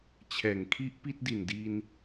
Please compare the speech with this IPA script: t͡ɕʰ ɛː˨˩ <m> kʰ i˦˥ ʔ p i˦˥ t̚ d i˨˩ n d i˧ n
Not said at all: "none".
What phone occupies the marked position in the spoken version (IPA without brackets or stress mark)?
ŋ